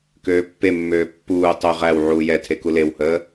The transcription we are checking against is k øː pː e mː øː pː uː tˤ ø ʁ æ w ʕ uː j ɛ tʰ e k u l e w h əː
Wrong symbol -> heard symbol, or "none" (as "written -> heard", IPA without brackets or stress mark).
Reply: none